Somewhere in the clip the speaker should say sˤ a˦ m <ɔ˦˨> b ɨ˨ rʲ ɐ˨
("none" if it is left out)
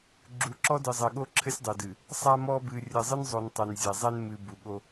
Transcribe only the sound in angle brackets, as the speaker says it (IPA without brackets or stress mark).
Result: ɔ˦